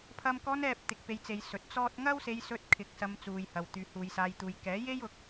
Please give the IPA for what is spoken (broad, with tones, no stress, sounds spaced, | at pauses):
pʰ ɐ˥ m k ɔː˧ n ɛː˨ p̚ t̪ ɪ˧ k̚ p e˧ j t͡s e˨˧ j s ɵ˨˥ t̚ t͡s ɔː˥ t̚ ŋ ɐ˥ w s e˧ j s ɵ˧ t̚ kʰ ɪ˨˥ k̚ s ɐ˧ m t͡s uː˨ j h ɐ˨ w t̪ yː˨˧ h uː˨˧ j s aː˧ j t̪ uː˨˧ j k ɛː˨˥ j e˥ j ʊ˨˥ k̚